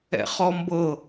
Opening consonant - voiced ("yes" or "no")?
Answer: no